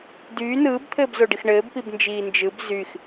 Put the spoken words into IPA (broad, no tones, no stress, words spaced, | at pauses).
dyː nɯːbt̪ʰɘːbzoɖix ɳɘːbpibnd͡ʒiː nd͡ʒɯb zyx